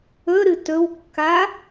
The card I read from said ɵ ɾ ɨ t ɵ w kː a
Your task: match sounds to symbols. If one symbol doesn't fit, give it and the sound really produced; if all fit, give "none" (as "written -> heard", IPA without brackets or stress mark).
none